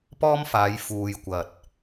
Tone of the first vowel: high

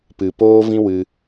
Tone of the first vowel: low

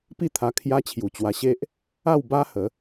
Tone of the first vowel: falling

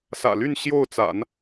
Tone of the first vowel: low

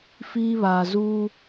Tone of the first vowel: high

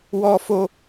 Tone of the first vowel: high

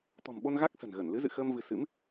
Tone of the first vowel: low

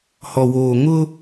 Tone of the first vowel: low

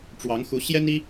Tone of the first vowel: rising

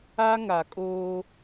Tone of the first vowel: high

